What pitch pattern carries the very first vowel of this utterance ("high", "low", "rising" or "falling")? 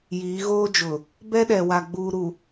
rising